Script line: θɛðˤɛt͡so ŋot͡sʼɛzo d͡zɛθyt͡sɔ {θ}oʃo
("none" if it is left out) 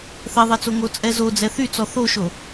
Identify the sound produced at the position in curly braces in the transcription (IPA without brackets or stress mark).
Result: θ